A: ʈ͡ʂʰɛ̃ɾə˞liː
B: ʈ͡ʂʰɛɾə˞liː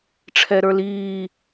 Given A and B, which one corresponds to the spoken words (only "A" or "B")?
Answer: B